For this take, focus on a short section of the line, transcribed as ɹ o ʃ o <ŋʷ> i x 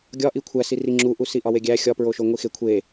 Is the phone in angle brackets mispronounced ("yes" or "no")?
no